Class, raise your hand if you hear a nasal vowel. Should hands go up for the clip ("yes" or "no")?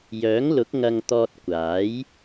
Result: no